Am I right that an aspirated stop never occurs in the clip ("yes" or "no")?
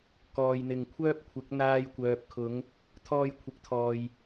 no